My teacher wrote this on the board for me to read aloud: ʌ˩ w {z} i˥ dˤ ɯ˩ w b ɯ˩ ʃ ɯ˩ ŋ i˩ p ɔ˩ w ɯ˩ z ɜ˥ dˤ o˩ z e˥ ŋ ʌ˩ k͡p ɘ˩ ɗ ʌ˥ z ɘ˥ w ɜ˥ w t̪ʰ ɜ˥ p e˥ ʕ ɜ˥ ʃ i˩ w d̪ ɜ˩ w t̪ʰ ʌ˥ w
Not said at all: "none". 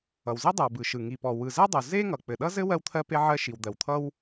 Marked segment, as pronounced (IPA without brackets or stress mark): z